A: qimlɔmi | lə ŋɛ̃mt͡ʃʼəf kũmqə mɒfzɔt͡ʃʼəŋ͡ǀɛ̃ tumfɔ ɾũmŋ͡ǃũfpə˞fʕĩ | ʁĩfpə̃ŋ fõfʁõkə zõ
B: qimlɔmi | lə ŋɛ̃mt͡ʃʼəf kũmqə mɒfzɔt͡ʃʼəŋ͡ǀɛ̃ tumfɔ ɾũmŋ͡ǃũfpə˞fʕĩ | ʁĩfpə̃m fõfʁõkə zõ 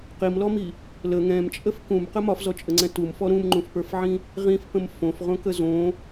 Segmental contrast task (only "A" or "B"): B